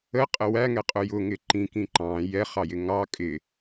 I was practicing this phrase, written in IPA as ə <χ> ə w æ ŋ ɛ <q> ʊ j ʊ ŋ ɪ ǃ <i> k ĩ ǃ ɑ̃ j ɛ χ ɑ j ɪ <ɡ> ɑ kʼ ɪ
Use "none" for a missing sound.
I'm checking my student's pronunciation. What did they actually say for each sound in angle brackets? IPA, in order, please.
qʼ, qʼ, ĩ, ŋ

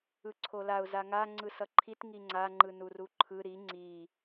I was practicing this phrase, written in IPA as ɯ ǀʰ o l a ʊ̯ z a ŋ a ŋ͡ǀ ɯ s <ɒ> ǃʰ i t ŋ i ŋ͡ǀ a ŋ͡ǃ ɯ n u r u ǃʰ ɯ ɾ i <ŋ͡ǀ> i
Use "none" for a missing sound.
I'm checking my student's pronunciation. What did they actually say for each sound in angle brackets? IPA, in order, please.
ʌ, ŋ͡ǀ

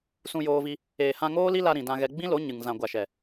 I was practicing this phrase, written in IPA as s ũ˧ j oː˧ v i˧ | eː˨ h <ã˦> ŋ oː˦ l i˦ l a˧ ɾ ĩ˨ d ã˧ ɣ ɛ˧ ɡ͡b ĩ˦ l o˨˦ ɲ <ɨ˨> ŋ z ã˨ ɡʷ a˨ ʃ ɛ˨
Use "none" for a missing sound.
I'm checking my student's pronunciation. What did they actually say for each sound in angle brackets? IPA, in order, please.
ã˧, ɨ˨

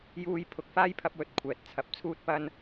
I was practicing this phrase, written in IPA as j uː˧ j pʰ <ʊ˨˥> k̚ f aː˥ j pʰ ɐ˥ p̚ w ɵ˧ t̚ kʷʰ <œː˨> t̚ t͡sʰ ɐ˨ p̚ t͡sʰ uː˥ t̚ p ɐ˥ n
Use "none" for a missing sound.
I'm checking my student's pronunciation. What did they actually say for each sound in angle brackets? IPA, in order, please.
ʊ˨, ɛː˨

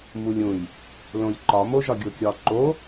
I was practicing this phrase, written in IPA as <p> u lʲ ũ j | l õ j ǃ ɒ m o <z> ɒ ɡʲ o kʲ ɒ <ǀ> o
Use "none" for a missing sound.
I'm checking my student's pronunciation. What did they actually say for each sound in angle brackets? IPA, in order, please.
m, ʒ, ǃ

